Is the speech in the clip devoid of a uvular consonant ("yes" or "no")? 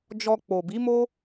yes